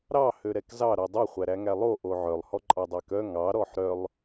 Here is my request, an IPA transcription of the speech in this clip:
ɾ ɑ h ø ɾ ɛ k z ɑ ɾ o dˤ i χʷ æ ɾ æ ŋ æ lˠ o ʔ o ʕ œ lˠ h ɔ ǃʼ ɑ dˤ æ k œ ŋ ɑ ɾ ɔ ħ ɾ œ lˠ

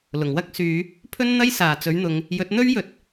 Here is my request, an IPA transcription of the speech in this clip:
l ʊ˨˩ ŋ w ɐ˥ k̚ s yː˨˧ | pʰ ɵ˥ n n̪ ɐ˥ j s aː˨ t͡s ɵ˨˥ ɥ n̪ ʊ˨˧ ŋ | j ɵ˨˥ t̚ n̪ ɵ˥ ɥ j ɵ˨ t̚

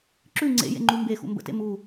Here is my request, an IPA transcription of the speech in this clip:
ǁ ʉ ŋ͡ǀ ḛ j ḛ ŋ͡ǃ u m b e x ṵ m b ə̰ t ḛ m u

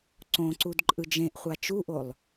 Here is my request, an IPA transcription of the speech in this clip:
ǀ õ ǀ u d ǃʼ ɯ d͡ʒ ẽ ʔ χʷ a t͡ʃ u ʔ o lˠ

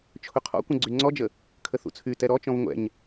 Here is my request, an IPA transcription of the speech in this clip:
t͡ʃʰ ʊ qʰ ɔ̰ kʷ ə̃ ɡ͡ǀ y ŋ͡ǀ ɔ d͡ʒ ə | kʰ ə θ ṵ t͡sʰ y t ɛ ɾ ɔ t͡ʃ ɔ̃ v ŋʷ ɛ̰ ɲ

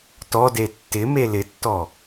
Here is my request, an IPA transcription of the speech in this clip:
t ɔ d e tː ɪ m e l ɪ tː ɔ

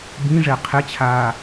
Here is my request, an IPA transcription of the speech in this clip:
b ĩ ʐ ɛ qʰ e t͡ɕʰ aː

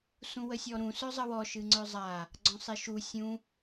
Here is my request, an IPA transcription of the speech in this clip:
s ũ w ə sʲ ɔ ɾ ũ s œ zˤ ə w ɔ ʃ ɨ ŋ͡ǀ œ zˤ a | ɡ͡ǀ ɔ̃ sˤ e ʃ u sʲ ũ

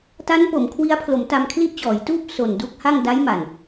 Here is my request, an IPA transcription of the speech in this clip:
t a˦˥ n p o˩˦ m kʰ w i˦˥ a̯ pʰ l o˩˦ m t a˧ m kʰ l i˦˥ ʔ t͡ɕ ɔː˩˦ j t uː˥˩ p̚ s o˨˩ n d u˦˥ k̚ h a˥˩ ŋ d a˦˥ j m a˨˩ n

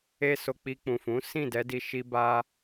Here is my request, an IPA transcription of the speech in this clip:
e˦ s o˧ k͡p i˧ k͡p ũ˨ f ũ˨˦ s ĩ˦˨ d ɛ˧ d i˧ ʃ i˦ b a˦

